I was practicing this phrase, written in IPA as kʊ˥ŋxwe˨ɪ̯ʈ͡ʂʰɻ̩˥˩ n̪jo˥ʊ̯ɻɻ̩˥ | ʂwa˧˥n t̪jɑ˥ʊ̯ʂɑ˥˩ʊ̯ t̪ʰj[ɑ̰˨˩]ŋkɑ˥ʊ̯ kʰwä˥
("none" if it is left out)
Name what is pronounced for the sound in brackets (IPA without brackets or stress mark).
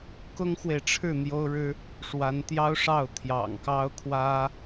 ɑ̰˨˩